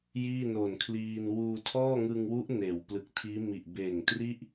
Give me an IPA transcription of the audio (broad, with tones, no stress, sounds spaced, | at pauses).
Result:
j iː˥˩ n o˨˩ n kʰ l iː˧ n w uː˧ tʰ ɔː˥˩ ŋ ɯ˧ ŋ w u˦˥ ʔ n eː˩˦ w p l ɯ˨˩ k̚ tʰ iː˦˥ m i˨˩ ʔ b eː˨˩ ŋ t r i˥˩ ʔ